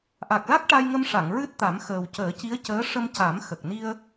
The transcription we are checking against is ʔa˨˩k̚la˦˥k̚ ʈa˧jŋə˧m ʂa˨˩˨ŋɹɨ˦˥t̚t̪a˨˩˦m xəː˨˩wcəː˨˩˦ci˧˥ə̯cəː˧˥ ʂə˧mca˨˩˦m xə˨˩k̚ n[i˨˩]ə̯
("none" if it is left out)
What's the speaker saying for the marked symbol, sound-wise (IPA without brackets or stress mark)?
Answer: i˧